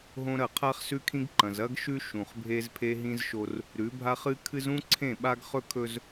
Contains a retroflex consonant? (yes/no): no